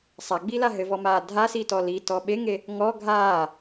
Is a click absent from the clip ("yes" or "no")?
yes